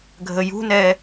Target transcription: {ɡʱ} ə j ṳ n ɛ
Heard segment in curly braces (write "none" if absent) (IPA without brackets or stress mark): ɡʱ